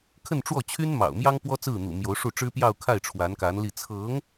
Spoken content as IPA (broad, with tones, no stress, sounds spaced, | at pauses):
kʰ ə˥˧ n ʈ͡ʂ w ɔ˥˩ t͡ɕʰ y˥ n m ɑ̰˨˩ ʊ̯ m j ɑ˥ ŋ p w ɔ˥ t͡s ɹ̩˥˩ n̪ ṵ˨˩ m j o˧˥ ʊ̯ ʂ u˥˩ ʈ͡ʂ ɻ̩˥ p j ɑ˥˧ ʊ̯ kʰ a˥˩ ɪ̯ ʈ͡ʂʰ w a˧˥ n k a˧˥ n l i˥˩ t͡sʰ ɤ˧˥ ŋ